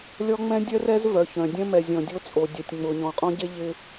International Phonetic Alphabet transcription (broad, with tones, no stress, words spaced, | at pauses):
lʲɔ˦ŋ͡mɛ̃˦dʲœ˦rɛ˦z vœ˨çœ̃˨dʲœ̃˦ mɛ˨zʲɔ̃˨dʲo˦t͡sʼo˨ dʲɛ˨tʲŋ͡mʊ˨ ɲɔ̃˨qʼɔ̃˦ɟe˦ ʎɪ˦